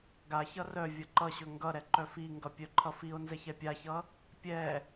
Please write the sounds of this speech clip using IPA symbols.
ɡ a ç ʌ r œ vʲ ʌ ǃ ʌ ɕ ɵ ŋ ɡ ʌ ɾ ɛ ǃ œ f i ŋ ɡ ʌ pʲ œ ǃʰ ʌ f i o̯ n z ɛ ç ɛ pʲ a ç ʌ | pʲ ɛ

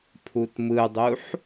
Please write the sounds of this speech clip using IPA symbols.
pʰ u t m ɯ dˤ u ħ

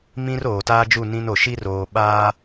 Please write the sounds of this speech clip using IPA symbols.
m ĩ˦ r oː˨ t aː˦ d͡ʒ u˦˨ n ĩ˦ n o˨ ʃ i˦ r oː˨ ɓ aː˦

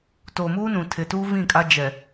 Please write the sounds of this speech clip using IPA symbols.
t oː˨ m uː˦ n ũ˨ tʰ ɪ˨ t uː˦ v ĩ˦˨ kʼ a˦ d͡ʒ ɛ˨

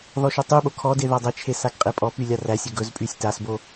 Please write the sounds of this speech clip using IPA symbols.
ð ɔ ʃ o tˤ y ɓ o kʰ ɔ d e ð a dˤ e t͡ʃʰ e s a ɡ qʼ e pʼ ɔ p y lʲ a r æ sʲ ɵ ɡ ɵ z pʼ y sʲ t a s b o

